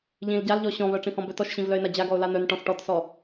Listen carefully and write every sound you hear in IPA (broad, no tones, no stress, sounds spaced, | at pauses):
ʎ ĩ l ɟ a l ʎ ɔ ɕ ɔ̃ β œ ʈ͡ʂ ĩ h ɔ̃ b œ t ɔ ʃ ɕ ĩ v l œ ɪ̯ n a d͡ʑ a ɡ ɔ ʊ̯ l a n̪ œ n ʈ ɔ̃ s ʈ ɔ t s ɔ